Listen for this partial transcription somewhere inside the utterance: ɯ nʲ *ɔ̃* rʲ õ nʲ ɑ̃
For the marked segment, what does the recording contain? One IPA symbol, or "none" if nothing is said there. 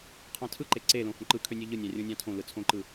ɑ̃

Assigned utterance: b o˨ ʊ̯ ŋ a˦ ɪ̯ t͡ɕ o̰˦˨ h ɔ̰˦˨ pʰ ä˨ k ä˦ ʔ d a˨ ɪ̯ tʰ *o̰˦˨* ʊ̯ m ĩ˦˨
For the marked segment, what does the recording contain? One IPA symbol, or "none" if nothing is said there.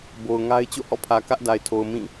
o˨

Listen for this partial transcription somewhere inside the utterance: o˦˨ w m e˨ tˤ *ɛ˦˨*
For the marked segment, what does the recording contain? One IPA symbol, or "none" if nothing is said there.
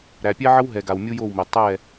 ɛ˦˨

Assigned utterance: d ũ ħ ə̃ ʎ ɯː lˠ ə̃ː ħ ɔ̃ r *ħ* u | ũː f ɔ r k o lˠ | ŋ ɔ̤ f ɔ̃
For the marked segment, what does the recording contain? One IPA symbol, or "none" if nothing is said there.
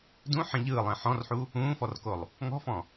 ħ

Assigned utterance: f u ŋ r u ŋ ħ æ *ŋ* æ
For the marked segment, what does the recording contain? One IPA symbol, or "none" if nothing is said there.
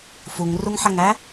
ŋ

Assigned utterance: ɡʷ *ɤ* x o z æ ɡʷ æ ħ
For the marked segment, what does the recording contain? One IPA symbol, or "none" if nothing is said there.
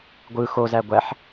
ɯ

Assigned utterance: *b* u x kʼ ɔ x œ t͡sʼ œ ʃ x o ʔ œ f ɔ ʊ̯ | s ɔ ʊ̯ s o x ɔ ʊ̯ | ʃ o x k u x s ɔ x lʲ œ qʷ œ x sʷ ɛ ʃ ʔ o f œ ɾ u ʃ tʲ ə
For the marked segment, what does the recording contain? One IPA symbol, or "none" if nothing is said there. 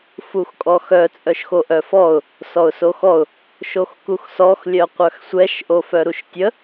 f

